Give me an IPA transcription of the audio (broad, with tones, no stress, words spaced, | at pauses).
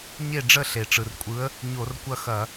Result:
ɲe˥˨ɖ͡ʐə˥˨ ɬe˩ʈ͡ʂɯ˩rkʷʼɯ˨˥ə̯ | ɲo˧˩˧rkʷɐ˥˨xɐ˧˩˧